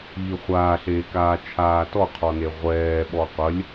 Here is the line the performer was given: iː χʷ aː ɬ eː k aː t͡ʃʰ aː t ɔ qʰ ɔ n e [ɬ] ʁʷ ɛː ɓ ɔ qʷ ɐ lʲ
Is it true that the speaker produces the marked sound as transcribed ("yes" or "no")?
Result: no